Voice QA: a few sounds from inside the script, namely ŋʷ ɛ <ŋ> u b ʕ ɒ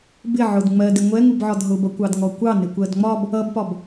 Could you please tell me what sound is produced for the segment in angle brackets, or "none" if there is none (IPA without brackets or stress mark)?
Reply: ŋ